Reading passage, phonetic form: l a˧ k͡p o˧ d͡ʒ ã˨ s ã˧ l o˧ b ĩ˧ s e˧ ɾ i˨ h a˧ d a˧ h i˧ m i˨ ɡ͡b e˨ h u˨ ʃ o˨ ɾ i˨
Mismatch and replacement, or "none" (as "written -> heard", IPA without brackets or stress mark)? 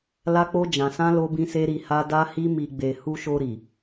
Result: none